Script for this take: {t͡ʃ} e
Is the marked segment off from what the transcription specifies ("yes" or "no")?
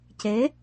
yes